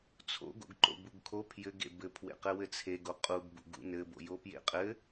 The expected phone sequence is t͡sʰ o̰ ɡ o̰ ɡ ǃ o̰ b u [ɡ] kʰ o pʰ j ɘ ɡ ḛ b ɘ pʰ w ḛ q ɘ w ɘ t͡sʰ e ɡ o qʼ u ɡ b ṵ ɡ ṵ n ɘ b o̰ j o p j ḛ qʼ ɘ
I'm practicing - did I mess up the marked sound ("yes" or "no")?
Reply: no